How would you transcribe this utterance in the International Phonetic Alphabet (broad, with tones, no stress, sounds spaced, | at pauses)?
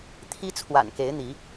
t̪ʰ i˦ t͡sʰ w a̰˨˩ n k e˨˦ ɪ̯ n̪ i˨˦